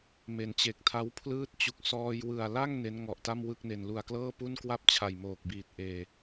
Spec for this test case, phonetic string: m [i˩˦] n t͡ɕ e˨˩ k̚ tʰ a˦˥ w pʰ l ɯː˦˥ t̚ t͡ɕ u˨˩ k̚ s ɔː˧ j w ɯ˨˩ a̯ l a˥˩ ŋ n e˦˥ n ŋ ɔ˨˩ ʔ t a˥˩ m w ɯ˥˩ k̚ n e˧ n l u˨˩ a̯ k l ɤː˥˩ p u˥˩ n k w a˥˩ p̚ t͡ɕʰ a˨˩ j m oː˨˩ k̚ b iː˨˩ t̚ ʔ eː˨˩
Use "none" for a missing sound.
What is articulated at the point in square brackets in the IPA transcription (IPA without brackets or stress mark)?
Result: e˩˦